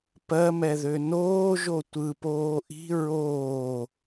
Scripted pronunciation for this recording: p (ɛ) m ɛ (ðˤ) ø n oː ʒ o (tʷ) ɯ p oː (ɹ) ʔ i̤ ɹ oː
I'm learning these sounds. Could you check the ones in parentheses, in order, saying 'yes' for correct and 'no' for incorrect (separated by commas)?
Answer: no, no, yes, no